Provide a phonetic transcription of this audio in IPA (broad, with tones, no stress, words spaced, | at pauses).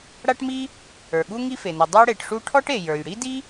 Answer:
ɽa˥ʈmi˥ | ə˞˩ɠu˥ ŋi˥fe˩nɛ˩ dˤə˞˥ɽe˩ʈʂu˥ ʈʰɔ˥ʈe˩ jə˞˩j ɽi˥di˥